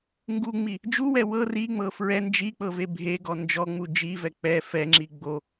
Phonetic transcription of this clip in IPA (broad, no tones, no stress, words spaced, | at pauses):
ŋɡuŋ͡mi | d͡ʒuwɛ wɤ riŋ͡mɤ fɹɛ nd͡ʒik͡pɤve bʱeɡɔ nd͡ʒɔŋ͡mu d͡ʒivɛ k͡pɛ fɛŋ͡ǁi ɡ͡bo